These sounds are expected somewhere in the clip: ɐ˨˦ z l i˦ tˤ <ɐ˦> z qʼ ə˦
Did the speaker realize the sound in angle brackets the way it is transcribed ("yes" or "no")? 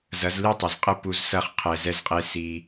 no